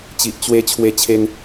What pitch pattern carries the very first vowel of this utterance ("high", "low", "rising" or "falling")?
low